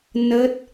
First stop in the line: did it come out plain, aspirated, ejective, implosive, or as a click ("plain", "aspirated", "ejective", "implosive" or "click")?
plain